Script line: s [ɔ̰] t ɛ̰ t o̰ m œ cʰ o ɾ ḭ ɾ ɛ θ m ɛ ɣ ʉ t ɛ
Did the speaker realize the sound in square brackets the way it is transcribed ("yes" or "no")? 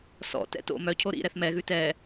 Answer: yes